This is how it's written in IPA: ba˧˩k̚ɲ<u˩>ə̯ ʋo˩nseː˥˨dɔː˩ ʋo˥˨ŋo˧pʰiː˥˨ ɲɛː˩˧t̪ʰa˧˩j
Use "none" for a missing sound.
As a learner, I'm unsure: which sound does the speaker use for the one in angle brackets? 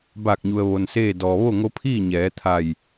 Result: u˩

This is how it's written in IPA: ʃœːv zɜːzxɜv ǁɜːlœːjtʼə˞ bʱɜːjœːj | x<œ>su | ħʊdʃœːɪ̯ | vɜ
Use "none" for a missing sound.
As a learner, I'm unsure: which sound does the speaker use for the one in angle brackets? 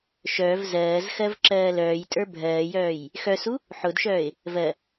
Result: œ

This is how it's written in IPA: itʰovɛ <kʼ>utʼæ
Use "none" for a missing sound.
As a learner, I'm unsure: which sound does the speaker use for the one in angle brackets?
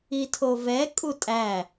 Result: kʼ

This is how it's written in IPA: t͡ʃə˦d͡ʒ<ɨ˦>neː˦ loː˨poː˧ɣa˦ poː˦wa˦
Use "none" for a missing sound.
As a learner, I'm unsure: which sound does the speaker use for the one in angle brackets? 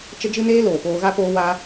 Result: ɨ˦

